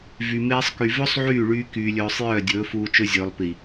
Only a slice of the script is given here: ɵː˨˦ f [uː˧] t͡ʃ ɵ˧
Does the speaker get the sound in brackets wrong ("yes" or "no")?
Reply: no